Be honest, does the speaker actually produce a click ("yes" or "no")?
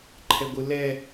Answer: yes